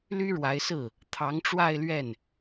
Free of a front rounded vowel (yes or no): no